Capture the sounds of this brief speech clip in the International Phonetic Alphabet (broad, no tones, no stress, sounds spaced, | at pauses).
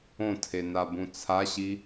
õ tʰ e n a b ũ t͡sʰ a ɕ i